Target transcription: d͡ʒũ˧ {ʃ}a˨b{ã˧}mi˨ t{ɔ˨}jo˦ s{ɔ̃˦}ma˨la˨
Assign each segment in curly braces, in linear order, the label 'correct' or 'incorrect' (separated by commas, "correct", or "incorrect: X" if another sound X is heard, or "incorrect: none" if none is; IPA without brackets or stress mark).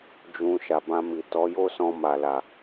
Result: correct, correct, incorrect: ɔ˨˦, incorrect: ɔ̃˧